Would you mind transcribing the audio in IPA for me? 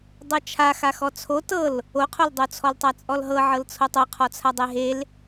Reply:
dˤ ɤ t͡ʃʰ a x a x ɔ t͡sʰ o t ɤ l | o qʰ o l dˤ o t͡sʰ ɔ l tˤ a t͡sʼ ɔ l ɦ ɤ ʕ ɤ l t͡sʰ o tˤ o qʰ ɔ t͡sʰ a dˤ e ɦ e l

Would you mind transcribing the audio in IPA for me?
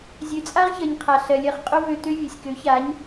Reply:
zʲ ø˨ t͡sʼ a˦ ʁ ç ɜ˨ ɲ qʰ a˨ ɬ ɜ˨ lʲ ɜ˧ χ qʼ o˦ v ø˧ t̪ ø˦ vʲ ø˨ sʲ k ø˨˦ ç a˨˦ ɲ

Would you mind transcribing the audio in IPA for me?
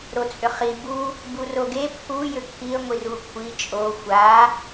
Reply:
ɾ o t͡sʼ ʏ χ i b u | b u r o ɡ e pʰ u j ʏ kʰ i ə̯ ŋʷ i r u kʷʰ i t͡ʃʼ o xʷ a

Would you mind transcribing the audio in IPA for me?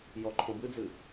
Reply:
j ɔ ǃʰ õ b ɨ d͡z ɨ

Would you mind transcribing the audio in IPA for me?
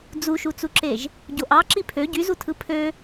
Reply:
d͡z u ʃ u t͡s u ǁ e ʒ | ɟ o ʔ ɑ ǁ i pʰ ø ɟ y z u tʰ ɯ pʰ ø

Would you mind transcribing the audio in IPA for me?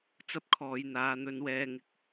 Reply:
t͡s ɐ˥ p̚ kʰ ɔː˨˧ j n̪ aː˨˧ n̪ ɵ˧ n w ɛː˧ ŋ ɪ˧ k̚

